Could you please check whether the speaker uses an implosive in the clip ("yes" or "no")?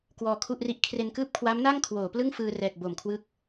no